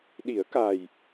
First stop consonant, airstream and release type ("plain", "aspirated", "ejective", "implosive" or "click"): implosive